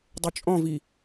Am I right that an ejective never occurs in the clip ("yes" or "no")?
no